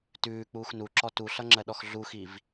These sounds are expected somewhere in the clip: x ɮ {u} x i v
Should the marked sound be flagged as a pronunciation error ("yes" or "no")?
no